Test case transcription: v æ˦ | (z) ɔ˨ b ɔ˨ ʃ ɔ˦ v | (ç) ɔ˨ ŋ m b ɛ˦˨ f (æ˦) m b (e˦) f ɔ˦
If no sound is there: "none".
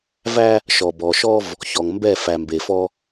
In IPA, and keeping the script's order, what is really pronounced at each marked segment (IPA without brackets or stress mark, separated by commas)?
ʃ, ç, æ˨, e˨